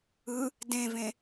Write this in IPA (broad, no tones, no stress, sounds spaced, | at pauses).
ɯ | d ẽ v ẽ